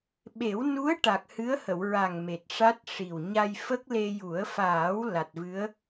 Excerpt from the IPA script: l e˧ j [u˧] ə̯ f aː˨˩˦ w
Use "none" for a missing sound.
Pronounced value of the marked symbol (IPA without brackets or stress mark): u˨˩˦